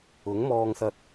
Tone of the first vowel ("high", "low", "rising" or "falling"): rising